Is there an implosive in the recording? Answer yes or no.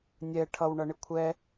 no